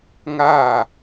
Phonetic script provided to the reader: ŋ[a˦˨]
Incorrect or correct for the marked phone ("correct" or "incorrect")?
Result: correct